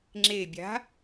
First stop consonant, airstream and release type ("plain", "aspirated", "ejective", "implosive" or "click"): click